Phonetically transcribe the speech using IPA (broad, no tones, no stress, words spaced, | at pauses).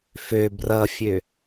fø brʌfʲø